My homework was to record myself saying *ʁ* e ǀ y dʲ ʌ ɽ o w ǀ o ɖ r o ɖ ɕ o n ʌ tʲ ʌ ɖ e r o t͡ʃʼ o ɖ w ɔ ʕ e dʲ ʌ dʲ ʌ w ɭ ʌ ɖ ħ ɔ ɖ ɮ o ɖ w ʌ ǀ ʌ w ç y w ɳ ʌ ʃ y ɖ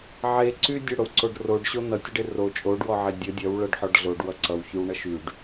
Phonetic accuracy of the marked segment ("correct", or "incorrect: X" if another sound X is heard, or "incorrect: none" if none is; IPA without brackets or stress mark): incorrect: ʕ